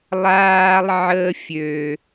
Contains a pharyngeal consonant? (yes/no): yes